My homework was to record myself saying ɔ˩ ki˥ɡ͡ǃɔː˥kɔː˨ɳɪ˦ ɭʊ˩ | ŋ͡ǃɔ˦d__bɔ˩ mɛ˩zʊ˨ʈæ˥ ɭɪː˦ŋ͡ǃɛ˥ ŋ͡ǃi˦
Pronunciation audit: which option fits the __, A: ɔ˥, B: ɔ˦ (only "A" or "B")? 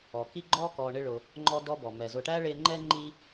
B